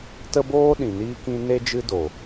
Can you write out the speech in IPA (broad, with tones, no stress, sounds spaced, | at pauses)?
t ə˦ b oː˦ ɗ ĩ˨ n iː˦ k ĩ˦ n e˦ d͡ʒ ɨ˦ d o˨